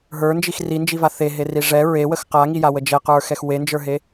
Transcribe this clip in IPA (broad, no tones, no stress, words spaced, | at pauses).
ɦə˞nd͡ʒix rind͡ʒiva θeɦeri ʐɛ ɹewəx qaŋijawə d͡ʒɛqə˞xɛx wend͡ʒə˞ɦe